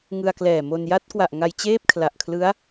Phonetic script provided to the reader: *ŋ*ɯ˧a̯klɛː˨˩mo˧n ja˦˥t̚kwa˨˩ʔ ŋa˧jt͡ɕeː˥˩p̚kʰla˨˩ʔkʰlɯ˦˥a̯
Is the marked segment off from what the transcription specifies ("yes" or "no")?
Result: no